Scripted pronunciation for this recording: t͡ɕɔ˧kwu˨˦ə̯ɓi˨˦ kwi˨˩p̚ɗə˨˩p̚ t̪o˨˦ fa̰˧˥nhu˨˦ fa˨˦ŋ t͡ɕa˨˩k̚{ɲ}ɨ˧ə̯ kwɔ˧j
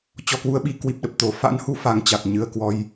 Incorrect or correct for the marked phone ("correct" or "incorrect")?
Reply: correct